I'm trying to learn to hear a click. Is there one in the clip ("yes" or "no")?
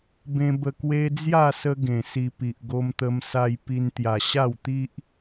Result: no